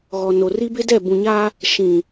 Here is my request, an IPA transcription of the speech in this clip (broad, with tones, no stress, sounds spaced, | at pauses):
ɣ ɔ˨ n o˨ r i˦ b ɪ˦ d ɛ˦˨ b ũ˨ ɲ a˦ | ʃ ĩ˨